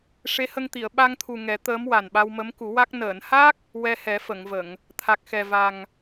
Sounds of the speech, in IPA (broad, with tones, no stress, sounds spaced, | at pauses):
ʂ e˧˥ h ə˧ ŋ t̪ i˨˩˨ ə̯ ɓ a˧ ŋ t̪ʰ u˨˩ ŋ ɛ˨˩˦ t̪ əː˧˥ m w a˨˩ n ɓ a˧ w m ə˧˥ m k u˨˩˦ w a˦˥ k̚ n əː˨˩˨ n h a˦˥ k̚ | w ɛ˧ h ɛ˨˩˦ f ə˨˩˨ ŋ v ə˨˩˨ ŋ | t̪ʰ a˨˩ k̚ x ɛ˨˩ v a˨˩ ŋ